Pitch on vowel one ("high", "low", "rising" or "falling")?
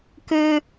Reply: high